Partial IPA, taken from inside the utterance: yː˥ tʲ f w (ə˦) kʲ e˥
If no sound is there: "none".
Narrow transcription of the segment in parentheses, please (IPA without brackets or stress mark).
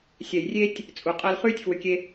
ʏ˦